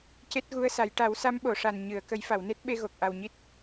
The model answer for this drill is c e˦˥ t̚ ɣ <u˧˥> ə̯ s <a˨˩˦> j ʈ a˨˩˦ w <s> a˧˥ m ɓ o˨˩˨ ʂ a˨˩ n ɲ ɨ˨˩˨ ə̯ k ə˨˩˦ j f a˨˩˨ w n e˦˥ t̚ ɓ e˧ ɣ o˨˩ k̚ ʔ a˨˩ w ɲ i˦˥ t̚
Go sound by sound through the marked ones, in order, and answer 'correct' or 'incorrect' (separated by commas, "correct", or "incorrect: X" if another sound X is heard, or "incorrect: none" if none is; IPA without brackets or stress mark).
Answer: correct, correct, correct